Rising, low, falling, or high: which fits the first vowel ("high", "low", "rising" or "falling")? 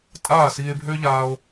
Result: falling